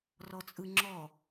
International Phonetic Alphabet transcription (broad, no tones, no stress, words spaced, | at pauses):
rɔt͡sʼɯŋ͡ǁɔ